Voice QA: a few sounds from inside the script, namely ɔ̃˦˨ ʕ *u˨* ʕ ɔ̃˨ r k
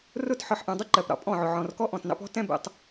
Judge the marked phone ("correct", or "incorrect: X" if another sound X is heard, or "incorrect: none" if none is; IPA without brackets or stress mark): incorrect: ʊ˨